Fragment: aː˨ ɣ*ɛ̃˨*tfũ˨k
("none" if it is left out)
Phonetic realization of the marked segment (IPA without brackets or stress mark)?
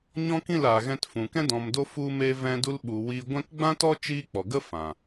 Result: ɛ̃˧